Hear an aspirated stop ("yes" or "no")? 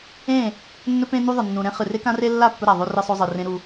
no